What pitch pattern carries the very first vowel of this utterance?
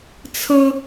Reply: high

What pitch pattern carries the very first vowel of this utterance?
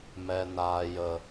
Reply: low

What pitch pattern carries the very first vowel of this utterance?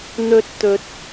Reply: high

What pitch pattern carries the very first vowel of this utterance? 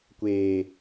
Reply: low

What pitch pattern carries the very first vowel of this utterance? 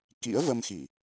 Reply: rising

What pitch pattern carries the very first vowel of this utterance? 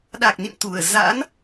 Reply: low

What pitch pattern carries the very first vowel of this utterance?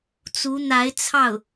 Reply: rising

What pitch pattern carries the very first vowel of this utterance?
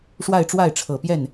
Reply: falling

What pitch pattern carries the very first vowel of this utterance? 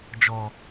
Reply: low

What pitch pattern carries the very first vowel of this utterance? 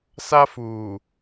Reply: high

